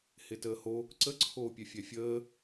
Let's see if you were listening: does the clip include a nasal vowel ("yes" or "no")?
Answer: no